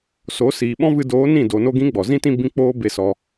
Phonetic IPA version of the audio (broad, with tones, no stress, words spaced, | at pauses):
so˨˦ siː˨ɓɔ̃˦vɨ˧ doː˨˦nĩ˦˨ do˨no˧ɡĩ˨˦ ɡ͡bɔ˨zĩ˦tĩ˦ bĩ˦k͡poː˦be˦˨ sɔ˧